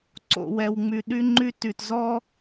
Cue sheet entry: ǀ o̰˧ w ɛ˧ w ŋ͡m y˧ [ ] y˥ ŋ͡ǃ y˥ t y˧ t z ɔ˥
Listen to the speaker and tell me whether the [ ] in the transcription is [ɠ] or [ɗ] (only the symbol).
ɗ